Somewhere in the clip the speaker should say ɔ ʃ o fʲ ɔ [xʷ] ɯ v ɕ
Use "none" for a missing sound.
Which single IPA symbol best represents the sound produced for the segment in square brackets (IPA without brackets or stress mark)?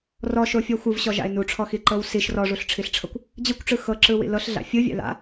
xʷ